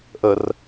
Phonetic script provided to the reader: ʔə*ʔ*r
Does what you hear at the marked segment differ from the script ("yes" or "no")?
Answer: yes